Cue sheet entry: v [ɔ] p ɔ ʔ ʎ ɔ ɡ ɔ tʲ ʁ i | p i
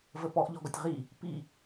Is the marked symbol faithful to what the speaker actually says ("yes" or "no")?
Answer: no